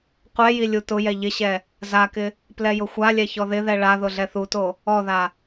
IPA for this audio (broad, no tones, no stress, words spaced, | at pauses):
qʷɛji lʲutʊjɛ ʎɪɕɛ | zakɪ | plɛjʊxʷalʲɛ çɔðɪðɛ ɭa ðʊɮɛθuto | ɔða